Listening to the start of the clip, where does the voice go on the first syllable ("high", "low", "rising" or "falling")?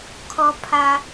low